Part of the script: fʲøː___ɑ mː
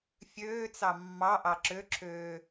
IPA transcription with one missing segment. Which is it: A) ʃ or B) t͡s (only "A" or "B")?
B